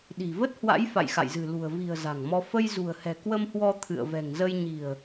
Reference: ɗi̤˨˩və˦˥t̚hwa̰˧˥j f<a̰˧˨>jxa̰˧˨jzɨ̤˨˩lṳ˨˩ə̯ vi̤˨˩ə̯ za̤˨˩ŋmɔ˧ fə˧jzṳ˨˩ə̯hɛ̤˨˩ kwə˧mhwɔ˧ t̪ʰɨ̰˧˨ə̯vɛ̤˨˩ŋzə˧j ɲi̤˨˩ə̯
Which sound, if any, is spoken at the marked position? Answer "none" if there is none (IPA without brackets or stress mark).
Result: a̰˧˨